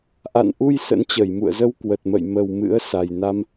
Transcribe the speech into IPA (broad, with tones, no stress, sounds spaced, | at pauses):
ʔ a̰˧˨ n ʔ u˧ j s ə̰˧˥ n t͡ɕ ə˧˩ j m ṵ˧˨ ə̯ z ə˧ w k w ə˨˩ t̚ m ə̰˧˨ j m ə˨˩ w m ɨ̰˧˥ ə̯ s a˨˩ j n a˧ m